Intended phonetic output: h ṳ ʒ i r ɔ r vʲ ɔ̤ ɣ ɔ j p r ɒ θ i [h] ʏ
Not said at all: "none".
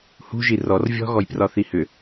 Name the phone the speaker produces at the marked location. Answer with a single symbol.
h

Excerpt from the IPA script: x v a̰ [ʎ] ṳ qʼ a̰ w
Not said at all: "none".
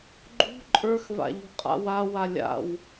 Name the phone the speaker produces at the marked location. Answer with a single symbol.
ʎ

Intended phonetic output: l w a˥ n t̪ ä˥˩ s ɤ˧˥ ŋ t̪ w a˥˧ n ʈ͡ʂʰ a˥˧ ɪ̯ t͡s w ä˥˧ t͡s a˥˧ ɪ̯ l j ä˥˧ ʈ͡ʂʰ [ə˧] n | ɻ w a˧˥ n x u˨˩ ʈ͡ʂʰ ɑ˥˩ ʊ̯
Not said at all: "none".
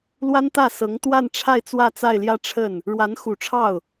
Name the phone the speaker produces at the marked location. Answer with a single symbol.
ə˥˩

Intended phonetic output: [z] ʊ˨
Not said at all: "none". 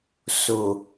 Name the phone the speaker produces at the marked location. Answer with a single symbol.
s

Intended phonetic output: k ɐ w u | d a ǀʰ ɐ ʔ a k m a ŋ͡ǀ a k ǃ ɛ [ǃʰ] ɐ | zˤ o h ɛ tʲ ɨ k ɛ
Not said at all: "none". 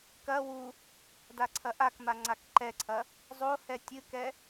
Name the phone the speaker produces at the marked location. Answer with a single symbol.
ǀʰ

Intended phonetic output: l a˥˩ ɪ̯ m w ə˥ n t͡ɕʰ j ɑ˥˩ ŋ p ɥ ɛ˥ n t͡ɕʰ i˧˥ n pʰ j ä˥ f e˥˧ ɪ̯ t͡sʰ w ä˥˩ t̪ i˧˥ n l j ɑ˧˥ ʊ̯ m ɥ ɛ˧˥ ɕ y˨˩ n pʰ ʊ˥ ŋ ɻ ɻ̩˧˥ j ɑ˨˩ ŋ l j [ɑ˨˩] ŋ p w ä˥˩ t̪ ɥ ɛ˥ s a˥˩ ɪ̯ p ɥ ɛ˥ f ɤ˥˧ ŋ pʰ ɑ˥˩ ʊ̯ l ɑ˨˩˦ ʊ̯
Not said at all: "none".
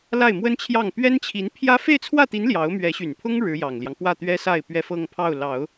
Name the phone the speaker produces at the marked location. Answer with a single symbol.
ɑ˦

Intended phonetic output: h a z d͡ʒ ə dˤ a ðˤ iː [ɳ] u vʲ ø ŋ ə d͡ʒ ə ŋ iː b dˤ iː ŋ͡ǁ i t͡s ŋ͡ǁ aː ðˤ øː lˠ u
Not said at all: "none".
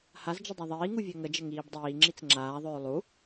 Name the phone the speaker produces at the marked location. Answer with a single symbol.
ŋ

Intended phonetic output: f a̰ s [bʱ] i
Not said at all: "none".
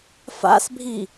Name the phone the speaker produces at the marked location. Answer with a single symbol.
bʱ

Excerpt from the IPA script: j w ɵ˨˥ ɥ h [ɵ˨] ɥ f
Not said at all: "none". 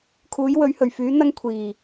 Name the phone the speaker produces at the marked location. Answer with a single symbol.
ɵ˨˩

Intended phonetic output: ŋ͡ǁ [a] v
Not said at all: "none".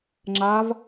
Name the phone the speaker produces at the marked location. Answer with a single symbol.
a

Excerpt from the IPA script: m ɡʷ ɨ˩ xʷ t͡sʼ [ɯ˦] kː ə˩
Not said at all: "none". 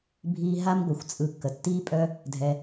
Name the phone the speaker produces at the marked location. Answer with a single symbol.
ɯ˨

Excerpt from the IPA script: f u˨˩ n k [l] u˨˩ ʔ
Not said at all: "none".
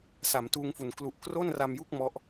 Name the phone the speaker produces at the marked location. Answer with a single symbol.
l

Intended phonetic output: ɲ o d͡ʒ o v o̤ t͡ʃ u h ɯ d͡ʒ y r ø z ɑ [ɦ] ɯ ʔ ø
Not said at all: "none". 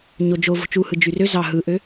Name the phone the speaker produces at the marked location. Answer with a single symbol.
ɦ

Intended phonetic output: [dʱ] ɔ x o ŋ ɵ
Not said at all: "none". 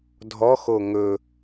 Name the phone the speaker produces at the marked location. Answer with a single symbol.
dʱ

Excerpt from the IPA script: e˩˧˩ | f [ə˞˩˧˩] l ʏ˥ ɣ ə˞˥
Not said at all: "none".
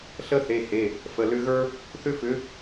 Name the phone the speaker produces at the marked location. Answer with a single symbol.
ə˩˧˩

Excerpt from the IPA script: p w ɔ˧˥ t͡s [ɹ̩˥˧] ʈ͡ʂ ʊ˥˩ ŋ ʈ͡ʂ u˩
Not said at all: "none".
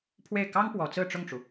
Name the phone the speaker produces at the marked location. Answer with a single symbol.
ɹ̩˥˧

